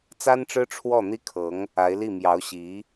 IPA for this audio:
t͡s a˥ n ʈ͡ʂ ɻ̩˥ ʈ͡ʂʰ w ɔ˥˩ n̪ i˥ kʰ ɤ˧˥ ŋ | a˧˥ ɪ̯ l i˥˩ m j ɑ˧˥ ʊ̯ ɕ i˧˥

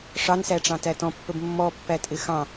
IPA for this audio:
ʂ ɑ n s æ ʈ͡ʂ ɑ̃ t æ t ɔ̃ pː ə b mː ɔ pː æ tʼ ɪ x ɑ̃

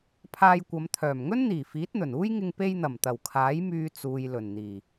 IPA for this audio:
pʰ aː˧ j kʷ ɐ˨˧ m t̪ʰ œː˨˩ m ŋ ɵ˥ n n̪ iː˨˩ f iː˨˥ t̚ n̪ ɵ˨˩ n uː˥ j ŋ ɪ˧ ŋ p e˧ j n̪ ɐ˨˩ m t̪ ɐ˨˩ w kʰ aː˨˥ j m yː˧ t͡s uː˨ j l ɵ˨˩ n n̪ iː˨˩

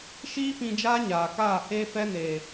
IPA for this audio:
ʃ iː˦ p ĩ˧ d͡ʒ aː˦ ɲ aː˨ k aː˦˨ h eː˦ f ɛ˦ n eː˨

